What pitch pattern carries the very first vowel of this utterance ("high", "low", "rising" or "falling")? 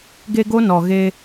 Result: high